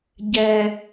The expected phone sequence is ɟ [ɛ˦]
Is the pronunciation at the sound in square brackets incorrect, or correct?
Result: correct